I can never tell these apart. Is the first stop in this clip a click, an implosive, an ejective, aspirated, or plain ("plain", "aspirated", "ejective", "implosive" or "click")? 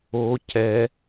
plain